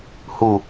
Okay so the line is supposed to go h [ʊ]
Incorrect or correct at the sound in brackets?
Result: incorrect: u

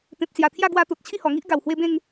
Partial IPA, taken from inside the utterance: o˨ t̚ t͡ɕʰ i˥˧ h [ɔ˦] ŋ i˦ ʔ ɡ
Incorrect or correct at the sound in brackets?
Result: incorrect: ɔ˨˩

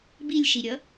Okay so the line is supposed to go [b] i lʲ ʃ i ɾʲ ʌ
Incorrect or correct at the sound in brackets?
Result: correct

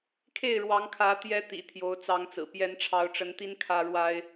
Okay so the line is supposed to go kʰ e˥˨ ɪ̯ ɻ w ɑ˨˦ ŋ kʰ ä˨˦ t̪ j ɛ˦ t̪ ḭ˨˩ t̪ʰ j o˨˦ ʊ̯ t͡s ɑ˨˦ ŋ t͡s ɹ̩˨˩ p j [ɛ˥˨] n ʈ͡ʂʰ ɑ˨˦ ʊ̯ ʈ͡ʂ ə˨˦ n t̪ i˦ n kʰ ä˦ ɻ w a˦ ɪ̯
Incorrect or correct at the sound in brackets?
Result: incorrect: ɛ˨˦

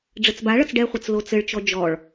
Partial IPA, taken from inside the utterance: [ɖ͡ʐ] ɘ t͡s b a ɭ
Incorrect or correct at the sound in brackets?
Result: correct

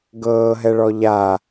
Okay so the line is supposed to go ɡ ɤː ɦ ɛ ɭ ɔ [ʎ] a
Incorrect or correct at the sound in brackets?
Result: correct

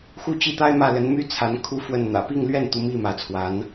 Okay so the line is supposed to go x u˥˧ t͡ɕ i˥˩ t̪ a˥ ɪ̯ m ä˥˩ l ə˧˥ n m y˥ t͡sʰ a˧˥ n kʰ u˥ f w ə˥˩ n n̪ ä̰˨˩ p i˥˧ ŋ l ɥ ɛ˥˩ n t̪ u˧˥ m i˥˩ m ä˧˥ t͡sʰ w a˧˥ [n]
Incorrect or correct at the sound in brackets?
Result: correct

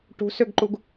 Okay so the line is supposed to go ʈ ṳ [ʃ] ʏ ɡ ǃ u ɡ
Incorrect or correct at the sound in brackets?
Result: incorrect: s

